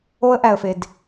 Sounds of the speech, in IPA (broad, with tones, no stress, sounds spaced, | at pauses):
o˦ ə̯ ʔ æ˨ ə̯ f e˨ d